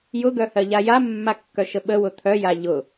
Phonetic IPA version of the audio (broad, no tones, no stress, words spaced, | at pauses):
jʊɡœhɜʎa jamːakːœʃə ɓəwʊ t̪ʰœja ʎʊ